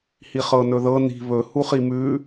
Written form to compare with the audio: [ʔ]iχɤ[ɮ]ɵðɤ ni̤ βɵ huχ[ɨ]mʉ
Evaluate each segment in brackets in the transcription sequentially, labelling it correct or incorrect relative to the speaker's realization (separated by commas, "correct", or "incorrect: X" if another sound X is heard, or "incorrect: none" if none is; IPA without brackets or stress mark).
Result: incorrect: h, incorrect: n, incorrect: i